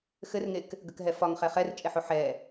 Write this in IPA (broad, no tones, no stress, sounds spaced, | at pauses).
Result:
x ɘ r ŋ e k | ɡ ə k ɦ ɛ f ɒ ŋ χ ɛ χ ɛ r t͡ʃʼ e ħ o ħ ɛ